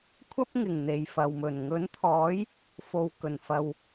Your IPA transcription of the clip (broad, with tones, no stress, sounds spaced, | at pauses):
kʷʰ ɐ˥ p̚ ŋ ɪ˨˩ ŋ n̪ e˨ j f ɐ˨ w m ɵ˨˩ n ŋ ɵ˨˥ n t̪ʰ ɔː˨˥ j | f o˨ w k ɵ˨˩ n f ɐ˨ w